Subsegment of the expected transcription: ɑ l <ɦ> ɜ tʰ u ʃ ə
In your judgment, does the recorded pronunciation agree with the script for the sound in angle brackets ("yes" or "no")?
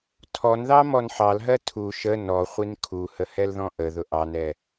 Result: yes